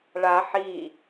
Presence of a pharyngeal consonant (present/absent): present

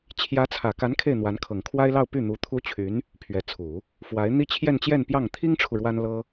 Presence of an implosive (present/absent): absent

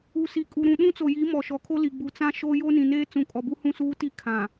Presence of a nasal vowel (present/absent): present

